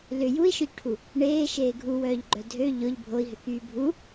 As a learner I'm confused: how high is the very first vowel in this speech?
high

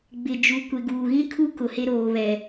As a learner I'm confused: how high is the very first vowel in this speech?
high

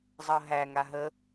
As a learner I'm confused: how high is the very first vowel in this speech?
mid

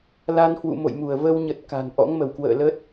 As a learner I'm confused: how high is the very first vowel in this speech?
low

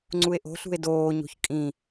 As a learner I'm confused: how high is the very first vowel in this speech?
high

